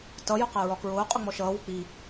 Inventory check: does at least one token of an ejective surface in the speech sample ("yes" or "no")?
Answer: yes